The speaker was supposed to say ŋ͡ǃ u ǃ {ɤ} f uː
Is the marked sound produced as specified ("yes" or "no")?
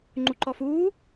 no